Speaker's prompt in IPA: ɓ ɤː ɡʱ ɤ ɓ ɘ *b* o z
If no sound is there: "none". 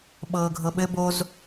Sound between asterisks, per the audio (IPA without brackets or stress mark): b